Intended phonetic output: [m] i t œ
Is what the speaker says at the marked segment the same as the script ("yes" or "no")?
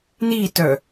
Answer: no